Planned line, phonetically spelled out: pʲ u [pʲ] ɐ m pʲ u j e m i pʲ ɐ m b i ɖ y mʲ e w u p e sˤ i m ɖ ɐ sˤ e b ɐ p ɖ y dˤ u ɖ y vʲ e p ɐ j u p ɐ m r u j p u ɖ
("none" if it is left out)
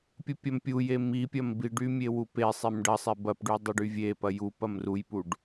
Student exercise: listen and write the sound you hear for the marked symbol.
pʲ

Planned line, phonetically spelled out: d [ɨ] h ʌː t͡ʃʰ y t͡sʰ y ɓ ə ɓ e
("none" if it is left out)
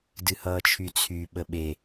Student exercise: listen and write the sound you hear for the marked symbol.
ɨ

